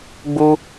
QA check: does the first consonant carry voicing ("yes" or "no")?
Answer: yes